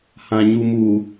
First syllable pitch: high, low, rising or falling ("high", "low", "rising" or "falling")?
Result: low